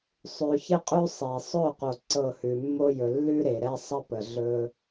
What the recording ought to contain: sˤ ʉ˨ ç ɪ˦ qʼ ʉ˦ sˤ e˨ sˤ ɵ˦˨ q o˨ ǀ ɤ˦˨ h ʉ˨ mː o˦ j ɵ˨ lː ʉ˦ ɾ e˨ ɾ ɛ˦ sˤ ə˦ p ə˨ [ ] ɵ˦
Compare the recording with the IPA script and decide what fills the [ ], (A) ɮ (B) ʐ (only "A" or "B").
A